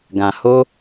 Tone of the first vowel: low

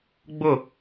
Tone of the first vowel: falling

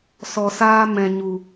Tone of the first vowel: low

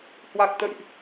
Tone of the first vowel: low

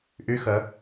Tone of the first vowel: rising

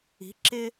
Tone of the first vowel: rising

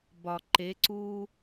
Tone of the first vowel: low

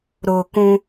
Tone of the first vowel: low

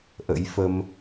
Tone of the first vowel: rising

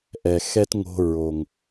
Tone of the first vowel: low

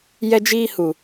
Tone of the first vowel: high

